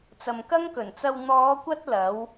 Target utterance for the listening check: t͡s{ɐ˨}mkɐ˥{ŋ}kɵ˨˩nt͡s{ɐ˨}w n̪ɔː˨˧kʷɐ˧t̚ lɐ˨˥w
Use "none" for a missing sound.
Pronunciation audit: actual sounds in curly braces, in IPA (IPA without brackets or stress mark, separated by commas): ɐ˨, ŋ, ɐ˧